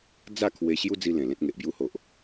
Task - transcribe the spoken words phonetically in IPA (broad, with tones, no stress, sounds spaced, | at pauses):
d͡z a˥˧ kʰ w e˧ ɕ j u˦ d͡z i˧ l ẽ˨˩ l ẽ˦ t̚ ŋ e˨ ʔ b j u˦ h o˨ ʔ